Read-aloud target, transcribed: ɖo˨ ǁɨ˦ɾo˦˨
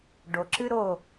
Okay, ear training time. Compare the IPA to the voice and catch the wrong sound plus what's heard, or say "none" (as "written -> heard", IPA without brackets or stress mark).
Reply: none